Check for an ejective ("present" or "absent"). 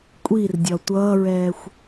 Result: present